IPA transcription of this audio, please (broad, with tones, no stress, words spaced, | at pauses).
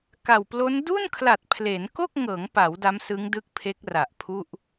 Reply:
ka˨˩wplo˦˥n du˥˩nkʰla˨˩t̚pʰle˩˦nko˥˩k̚ ŋɤː˩˦ŋpa˩˦w da˦˥msɯ˦˥ŋdɯ˦˥k̚pʰe˦˥k̚ ra˨˩ʔpʰu˥˩ʔ